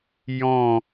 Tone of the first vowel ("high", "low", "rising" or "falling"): falling